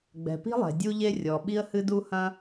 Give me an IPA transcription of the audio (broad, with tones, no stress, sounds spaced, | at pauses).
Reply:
ɡ͡b ɛ̤˩ p i̤˥ lˠ ɛ̤˩ dʲ u˥ ʎ e˥ rʲ ɔ˩ ɓ i˥ ə̯ h ɨ˥ d u˥ h ɐ̃˥